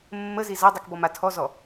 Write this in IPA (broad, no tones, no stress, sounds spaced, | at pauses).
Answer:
mː ə z i z a dˤ i k b ɔ m a tʰ ɔ z ɔ